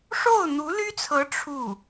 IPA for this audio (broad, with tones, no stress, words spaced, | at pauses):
ʂo˥˩ʊ̯n̪u˧˥ly˥t͡sʰɤ˧˥ ʈ͡ʂʰu˥˩